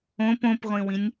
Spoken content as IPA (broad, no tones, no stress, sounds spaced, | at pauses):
õ p õ p ʁʷ ĩ w ĩ nʲ